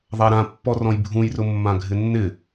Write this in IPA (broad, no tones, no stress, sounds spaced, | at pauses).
ðˤ a ɾ ã pː ɔ r ɔ̃ j bʱ ũ j r ʊ mː ã ɡʱ ɪ nː ɪ